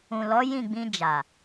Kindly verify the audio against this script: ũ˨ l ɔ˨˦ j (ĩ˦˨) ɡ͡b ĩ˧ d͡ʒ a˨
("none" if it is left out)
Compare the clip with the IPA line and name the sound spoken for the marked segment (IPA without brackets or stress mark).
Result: ĩ˦˨